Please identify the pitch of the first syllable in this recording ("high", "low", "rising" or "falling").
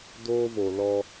high